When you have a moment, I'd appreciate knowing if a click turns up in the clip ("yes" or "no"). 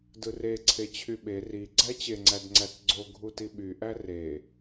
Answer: yes